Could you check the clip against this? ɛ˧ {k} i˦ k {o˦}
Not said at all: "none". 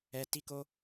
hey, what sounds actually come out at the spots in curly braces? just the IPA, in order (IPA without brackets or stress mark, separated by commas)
t, o˦